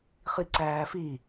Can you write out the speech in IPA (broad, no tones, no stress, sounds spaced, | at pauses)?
χ i ǀ æː f i